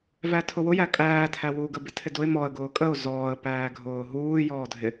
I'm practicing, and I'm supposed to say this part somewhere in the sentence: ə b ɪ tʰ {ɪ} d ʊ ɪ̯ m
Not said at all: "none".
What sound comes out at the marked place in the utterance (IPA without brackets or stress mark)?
ɪ